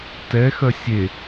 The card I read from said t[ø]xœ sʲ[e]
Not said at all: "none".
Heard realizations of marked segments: ɛ, e

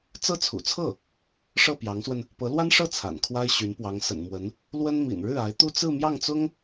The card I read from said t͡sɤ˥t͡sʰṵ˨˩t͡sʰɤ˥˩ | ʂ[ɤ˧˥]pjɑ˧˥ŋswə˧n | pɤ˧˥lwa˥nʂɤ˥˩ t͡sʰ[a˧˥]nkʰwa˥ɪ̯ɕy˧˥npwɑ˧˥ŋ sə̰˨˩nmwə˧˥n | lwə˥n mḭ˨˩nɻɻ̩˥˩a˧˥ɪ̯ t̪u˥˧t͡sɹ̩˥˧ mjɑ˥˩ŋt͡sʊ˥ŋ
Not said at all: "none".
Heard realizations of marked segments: ɤ˥˩, a̰˨˩

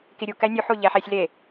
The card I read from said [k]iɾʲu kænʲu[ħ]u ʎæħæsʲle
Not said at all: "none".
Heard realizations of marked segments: k, ħ

